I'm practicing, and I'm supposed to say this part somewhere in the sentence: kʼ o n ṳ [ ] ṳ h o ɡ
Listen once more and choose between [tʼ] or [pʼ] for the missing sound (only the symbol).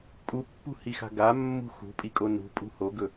pʼ